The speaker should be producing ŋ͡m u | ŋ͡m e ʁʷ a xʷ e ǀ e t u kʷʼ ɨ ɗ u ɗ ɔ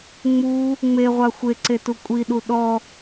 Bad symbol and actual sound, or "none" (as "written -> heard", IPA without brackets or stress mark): ɨ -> i